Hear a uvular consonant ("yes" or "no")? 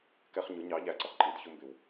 yes